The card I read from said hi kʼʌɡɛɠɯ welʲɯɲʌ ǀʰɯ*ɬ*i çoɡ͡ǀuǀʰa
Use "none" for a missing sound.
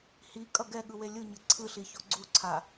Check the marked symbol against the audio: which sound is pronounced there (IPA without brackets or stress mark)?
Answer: ɬ